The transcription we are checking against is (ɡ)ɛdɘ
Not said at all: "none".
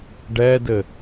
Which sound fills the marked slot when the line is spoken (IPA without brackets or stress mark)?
ɖ